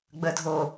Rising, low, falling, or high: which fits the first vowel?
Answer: low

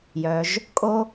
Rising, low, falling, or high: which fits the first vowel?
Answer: low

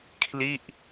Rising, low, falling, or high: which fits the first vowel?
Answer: falling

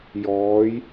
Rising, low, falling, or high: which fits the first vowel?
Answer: rising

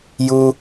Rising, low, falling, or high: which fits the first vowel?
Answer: high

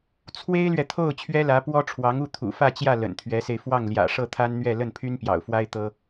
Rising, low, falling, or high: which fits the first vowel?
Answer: high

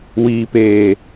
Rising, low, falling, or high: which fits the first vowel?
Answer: low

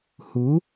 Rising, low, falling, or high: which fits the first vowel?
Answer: rising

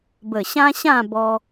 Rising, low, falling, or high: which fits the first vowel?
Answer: low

